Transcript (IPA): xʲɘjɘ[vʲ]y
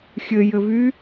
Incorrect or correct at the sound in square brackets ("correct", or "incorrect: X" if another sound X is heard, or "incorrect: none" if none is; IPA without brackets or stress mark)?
incorrect: v